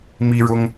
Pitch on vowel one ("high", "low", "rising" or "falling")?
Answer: high